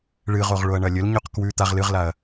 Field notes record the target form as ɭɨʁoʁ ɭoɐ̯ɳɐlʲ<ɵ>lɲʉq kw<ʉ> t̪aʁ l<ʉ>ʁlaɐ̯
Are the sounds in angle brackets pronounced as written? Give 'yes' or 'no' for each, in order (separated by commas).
yes, yes, no